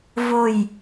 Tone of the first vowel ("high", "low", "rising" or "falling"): falling